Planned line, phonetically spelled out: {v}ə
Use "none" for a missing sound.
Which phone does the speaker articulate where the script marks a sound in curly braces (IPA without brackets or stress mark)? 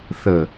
θ